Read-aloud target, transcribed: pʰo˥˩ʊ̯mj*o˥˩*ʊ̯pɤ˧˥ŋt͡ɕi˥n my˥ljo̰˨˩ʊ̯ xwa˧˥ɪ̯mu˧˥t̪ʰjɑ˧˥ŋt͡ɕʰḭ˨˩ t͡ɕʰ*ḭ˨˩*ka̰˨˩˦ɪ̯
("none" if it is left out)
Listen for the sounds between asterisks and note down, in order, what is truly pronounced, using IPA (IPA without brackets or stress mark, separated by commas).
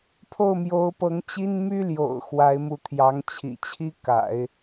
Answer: o˧˥, i˥